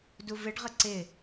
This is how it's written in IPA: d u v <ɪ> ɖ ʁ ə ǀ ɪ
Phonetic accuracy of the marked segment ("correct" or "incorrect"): correct